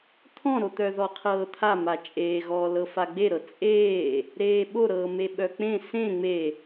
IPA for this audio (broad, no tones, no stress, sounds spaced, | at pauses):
t̪ʰ ɔ̃ ɾ o t̪ œ ð ɔ qʰ ɤː t̪ʰ a m a t͡ʃʼ eː ɣ ɔː l ɤ f a ɡ͡b e ɾ ɤ t͡sʼ eː | ɾ eː ɓ o ɾ ɤː m e ɓ œ k͡p ẽ s ẽ ŋ͡m e